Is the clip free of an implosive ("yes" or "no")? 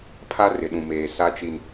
no